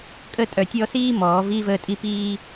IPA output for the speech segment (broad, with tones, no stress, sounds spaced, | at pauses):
kʼ ə˦ tʼ œ˧ tʲ ɔ˦ s iː˦ m ɔː˨˦ v iː˦ v əː˦˨ tʼ i˦ p iː˦